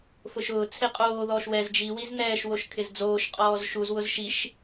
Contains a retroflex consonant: no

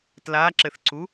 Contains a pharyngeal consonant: no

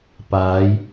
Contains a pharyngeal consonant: no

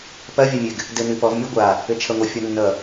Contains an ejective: no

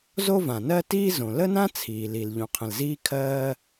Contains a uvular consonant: yes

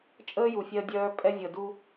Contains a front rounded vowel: yes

